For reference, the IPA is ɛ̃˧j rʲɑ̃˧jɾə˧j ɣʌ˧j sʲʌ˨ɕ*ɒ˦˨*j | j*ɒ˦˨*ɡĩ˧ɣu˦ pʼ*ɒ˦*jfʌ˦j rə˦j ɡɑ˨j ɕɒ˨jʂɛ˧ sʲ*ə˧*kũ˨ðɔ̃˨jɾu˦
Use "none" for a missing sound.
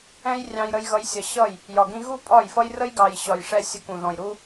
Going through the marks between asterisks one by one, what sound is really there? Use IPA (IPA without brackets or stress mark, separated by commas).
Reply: ʌ˦˨, ɒ˨, ɒ˦˨, ə˧